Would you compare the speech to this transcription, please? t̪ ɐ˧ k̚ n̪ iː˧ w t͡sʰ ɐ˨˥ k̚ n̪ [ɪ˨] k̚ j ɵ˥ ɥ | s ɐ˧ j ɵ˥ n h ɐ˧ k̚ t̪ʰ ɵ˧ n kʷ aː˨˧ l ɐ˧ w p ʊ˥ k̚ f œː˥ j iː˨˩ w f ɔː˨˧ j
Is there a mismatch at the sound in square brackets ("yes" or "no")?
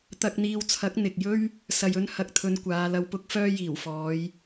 no